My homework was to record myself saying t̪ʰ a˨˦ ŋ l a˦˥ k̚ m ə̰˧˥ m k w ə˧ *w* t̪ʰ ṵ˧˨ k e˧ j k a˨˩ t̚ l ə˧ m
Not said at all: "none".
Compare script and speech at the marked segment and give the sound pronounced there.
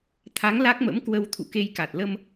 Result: w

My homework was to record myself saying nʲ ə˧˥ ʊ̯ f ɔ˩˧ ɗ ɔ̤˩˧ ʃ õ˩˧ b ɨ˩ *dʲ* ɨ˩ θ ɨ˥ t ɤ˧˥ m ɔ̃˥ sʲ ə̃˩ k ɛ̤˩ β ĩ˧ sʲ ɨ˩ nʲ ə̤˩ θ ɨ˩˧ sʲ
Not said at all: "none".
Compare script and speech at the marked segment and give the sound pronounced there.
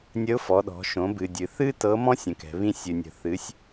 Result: dʲ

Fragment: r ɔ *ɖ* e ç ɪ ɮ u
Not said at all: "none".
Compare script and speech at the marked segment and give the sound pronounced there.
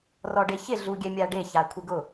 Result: ɖ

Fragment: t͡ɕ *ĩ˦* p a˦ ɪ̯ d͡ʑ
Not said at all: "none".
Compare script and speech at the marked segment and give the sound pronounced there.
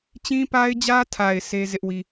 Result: ĩ˦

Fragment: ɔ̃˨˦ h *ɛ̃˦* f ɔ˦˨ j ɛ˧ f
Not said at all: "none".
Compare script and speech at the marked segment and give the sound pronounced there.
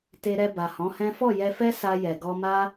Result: ɛ̃˦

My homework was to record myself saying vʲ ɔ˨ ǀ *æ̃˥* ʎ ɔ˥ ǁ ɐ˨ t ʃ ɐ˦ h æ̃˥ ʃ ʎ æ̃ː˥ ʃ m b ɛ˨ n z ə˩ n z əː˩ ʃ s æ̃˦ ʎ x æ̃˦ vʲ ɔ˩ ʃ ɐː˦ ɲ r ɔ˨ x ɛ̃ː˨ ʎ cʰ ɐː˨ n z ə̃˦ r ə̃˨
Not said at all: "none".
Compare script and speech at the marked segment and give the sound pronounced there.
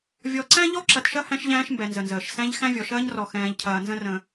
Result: æ̃˥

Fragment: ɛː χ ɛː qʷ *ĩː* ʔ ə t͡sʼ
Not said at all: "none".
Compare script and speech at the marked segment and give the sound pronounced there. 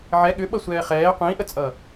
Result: ĩː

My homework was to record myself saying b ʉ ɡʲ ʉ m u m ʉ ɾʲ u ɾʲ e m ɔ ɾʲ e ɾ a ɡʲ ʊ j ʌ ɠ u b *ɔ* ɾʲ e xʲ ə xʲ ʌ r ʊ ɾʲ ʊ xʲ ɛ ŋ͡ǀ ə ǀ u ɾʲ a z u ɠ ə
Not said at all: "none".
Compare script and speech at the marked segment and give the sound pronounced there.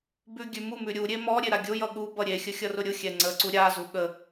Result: ʌ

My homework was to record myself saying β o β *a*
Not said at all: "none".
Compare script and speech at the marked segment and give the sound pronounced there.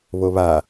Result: a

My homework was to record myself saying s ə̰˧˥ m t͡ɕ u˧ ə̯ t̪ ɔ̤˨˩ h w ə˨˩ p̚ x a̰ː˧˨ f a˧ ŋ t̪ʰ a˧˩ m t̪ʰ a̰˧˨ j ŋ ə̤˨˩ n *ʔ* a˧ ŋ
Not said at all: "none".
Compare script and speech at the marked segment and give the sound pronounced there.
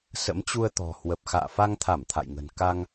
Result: k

